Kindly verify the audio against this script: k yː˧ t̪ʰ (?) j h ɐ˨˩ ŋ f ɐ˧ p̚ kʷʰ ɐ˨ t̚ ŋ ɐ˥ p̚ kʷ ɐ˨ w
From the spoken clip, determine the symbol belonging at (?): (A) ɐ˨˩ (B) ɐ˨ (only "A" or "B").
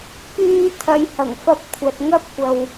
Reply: B